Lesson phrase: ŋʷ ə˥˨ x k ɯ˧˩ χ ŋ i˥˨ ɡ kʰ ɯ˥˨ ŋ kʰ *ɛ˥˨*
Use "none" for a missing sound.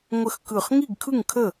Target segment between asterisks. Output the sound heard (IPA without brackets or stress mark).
ə˥˨